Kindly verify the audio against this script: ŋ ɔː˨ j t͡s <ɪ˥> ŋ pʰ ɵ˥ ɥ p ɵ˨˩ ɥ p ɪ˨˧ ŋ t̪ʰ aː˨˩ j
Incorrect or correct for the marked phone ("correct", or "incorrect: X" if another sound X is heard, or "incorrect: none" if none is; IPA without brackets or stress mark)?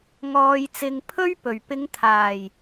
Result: incorrect: ɪ˨